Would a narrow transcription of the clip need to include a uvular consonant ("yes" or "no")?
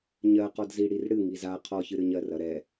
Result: yes